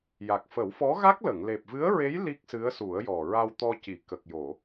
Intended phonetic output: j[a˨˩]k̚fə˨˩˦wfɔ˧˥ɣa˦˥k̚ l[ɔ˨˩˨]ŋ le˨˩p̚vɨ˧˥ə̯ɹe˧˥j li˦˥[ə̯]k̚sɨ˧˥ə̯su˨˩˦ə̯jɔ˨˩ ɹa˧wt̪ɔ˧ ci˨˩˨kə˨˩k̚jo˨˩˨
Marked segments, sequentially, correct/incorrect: correct, incorrect: ə˨˩˨, incorrect: none

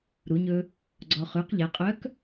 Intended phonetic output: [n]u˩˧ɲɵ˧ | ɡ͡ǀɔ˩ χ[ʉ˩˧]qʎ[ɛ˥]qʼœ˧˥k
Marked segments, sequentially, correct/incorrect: incorrect: ɾ, correct, incorrect: ɛ˩˧

